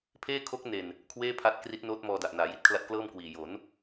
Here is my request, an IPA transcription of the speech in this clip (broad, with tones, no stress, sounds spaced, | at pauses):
pʰ eː˥˩ kʰ o˦˥ k̚ n e˨˩ n | kʰ w eː˥˩ pʰ a˦˥ t̚ k r i˦˥ t̚ n oː˦˥ t̚ m ɔː˧ d a˨˩ ʔ n aː˩˦ j i˦˥ t̚ kʰ l a˦˥ t̚ k l ɤː˥˩ m k w iː˨˩ j o˩˦ n